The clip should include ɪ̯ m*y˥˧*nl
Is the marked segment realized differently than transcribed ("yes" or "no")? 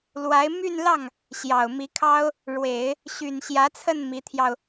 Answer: no